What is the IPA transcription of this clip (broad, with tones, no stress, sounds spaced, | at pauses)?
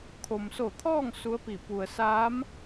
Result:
kʰ o˩ m s o˧˩ t̪ʰ ɔː˥˨ ŋ s u˧˥ ə̯ p i˧˩ p u˩ ə̯ s aː˧˥ m